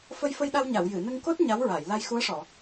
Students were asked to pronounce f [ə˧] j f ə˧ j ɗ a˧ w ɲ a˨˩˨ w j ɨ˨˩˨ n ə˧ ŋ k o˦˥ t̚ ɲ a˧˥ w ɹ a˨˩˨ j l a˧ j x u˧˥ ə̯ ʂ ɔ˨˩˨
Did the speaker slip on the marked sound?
no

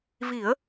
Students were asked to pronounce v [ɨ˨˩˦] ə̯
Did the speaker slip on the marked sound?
yes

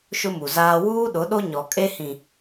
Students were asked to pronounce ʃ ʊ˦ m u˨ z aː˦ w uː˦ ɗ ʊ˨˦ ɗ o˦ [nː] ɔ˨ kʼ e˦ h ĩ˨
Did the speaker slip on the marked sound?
yes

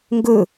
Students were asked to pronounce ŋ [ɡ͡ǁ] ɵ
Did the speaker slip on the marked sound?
yes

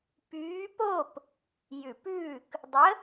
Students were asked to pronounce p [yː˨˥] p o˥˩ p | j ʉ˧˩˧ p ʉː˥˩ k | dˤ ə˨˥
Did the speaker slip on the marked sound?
no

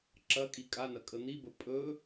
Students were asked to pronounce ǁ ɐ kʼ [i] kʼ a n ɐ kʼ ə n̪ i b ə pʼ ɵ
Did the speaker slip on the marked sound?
no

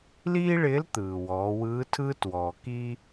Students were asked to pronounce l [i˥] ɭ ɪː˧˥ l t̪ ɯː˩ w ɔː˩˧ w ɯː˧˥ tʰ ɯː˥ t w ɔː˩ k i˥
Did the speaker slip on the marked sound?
yes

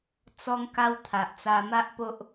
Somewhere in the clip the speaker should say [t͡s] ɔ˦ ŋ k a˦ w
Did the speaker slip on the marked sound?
no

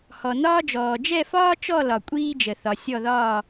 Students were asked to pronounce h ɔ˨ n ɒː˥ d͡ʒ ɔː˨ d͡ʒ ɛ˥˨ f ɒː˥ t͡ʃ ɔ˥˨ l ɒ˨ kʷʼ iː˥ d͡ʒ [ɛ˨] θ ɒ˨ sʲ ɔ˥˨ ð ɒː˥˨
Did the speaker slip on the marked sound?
yes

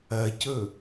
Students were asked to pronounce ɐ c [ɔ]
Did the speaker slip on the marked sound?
yes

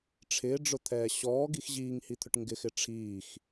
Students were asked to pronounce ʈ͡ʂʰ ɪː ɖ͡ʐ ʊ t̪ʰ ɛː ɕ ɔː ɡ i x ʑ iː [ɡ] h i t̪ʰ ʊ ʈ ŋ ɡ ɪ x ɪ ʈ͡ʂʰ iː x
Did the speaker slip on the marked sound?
yes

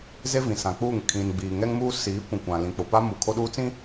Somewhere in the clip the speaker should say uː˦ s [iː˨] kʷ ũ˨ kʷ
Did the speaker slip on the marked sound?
yes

